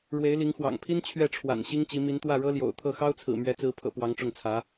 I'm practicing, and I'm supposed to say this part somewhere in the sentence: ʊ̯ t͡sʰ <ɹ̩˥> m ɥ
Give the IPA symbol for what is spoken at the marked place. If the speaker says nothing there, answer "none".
ɹ̩˨˩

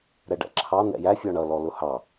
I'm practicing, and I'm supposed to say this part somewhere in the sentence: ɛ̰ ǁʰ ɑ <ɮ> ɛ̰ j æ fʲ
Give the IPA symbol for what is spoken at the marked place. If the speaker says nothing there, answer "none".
n̪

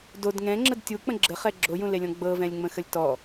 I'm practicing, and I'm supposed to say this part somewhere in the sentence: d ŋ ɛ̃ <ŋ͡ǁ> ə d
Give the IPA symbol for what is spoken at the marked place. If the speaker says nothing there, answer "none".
ŋ͡ǁ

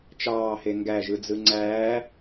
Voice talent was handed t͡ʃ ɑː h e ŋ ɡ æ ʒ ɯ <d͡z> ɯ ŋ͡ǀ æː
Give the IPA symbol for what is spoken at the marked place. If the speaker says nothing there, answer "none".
d͡z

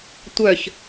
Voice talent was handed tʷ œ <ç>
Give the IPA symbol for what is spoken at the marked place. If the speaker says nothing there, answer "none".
ç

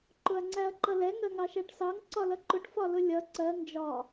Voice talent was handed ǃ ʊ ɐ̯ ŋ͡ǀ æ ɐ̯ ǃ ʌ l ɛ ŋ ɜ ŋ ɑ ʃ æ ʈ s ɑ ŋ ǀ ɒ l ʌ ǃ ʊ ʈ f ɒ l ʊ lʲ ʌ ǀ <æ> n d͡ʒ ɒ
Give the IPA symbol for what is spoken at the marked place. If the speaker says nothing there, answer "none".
ɜ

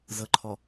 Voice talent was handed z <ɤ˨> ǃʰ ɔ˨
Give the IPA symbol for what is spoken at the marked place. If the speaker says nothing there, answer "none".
ɤ˨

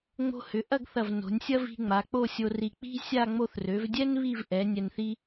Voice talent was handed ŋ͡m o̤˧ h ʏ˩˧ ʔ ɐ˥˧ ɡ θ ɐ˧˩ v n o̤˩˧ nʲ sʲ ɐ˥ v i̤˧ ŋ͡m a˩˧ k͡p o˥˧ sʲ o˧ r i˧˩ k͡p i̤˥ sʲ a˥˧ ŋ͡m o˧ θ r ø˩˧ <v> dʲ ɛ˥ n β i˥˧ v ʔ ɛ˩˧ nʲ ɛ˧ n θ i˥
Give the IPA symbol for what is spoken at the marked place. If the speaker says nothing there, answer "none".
v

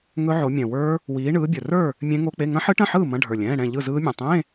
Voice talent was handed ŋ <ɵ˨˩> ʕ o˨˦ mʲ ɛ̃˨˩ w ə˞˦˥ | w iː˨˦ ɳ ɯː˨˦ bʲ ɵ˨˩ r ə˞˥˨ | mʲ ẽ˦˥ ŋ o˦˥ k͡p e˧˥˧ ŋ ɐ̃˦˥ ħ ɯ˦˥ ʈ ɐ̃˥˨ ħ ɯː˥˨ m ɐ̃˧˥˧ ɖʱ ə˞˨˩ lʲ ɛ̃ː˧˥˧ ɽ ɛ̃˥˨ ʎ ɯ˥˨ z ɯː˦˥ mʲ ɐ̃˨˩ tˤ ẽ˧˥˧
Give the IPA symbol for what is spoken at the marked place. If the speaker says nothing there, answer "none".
ɵ˦˥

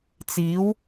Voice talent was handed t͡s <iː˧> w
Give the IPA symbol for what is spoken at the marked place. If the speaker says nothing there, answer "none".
iː˨˥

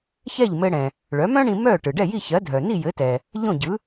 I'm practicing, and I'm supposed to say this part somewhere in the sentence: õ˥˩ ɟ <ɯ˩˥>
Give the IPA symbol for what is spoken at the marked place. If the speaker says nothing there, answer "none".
ɯ˩˥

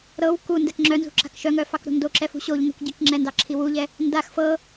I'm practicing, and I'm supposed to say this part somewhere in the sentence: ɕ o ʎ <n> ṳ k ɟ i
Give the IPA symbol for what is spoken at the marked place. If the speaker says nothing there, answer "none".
n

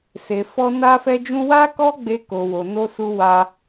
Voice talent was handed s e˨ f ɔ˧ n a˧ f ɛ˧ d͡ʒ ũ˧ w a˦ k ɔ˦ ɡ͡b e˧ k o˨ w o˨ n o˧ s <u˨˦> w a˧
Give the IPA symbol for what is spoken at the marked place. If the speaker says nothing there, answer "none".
u˧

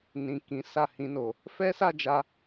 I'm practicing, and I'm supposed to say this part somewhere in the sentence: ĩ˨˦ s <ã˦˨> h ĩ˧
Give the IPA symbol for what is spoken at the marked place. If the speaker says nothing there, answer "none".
a˦˨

